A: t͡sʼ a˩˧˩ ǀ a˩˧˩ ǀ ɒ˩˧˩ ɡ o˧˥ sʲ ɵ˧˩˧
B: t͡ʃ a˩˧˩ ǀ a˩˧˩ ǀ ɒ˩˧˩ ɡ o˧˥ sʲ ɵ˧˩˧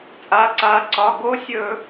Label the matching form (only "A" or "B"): A